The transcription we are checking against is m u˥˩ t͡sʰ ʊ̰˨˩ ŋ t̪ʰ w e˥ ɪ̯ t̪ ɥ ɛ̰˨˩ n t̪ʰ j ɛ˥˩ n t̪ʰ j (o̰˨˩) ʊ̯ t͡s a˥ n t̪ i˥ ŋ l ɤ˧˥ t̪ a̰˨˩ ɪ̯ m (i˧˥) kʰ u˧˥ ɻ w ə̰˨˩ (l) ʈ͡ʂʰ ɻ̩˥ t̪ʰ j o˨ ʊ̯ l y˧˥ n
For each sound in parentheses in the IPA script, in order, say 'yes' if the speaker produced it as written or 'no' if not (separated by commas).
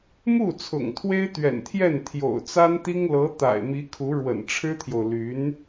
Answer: yes, yes, no